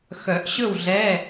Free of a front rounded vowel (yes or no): no